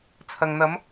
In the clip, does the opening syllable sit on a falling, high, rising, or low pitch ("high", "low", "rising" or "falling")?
low